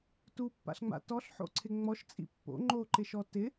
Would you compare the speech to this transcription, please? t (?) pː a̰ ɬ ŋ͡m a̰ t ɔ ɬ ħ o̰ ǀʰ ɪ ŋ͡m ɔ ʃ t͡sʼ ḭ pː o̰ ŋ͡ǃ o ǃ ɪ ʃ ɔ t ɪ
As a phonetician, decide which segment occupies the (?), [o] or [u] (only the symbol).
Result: u